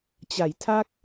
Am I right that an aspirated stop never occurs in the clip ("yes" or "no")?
no